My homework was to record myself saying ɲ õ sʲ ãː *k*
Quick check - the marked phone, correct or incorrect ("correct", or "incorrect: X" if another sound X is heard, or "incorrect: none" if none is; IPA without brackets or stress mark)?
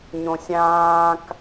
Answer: correct